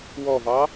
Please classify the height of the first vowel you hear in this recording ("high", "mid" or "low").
mid